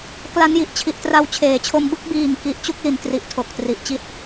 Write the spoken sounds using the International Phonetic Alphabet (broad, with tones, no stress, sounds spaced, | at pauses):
k l a˦˥ n j i˨˩ ʔ t͡ɕʰ i˨˩ ʔ t r a˧ w t͡ɕʰ eː˩˦ t͡ɕʰ o˧ m b ɯ˥˩ k̚ b iː˨˩ ŋ k i˨˩ ʔ t͡ɕ u˥˩ k̚ l i˨˩ n t r i˨˩ ʔ tʰ o˨˩ k̚ t r i˨˩ ʔ t͡ɕ i˥˩ t̚